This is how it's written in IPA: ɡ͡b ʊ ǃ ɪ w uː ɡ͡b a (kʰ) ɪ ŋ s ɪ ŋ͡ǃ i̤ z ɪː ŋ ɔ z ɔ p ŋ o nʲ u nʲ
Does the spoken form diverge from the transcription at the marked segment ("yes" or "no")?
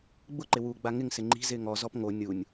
yes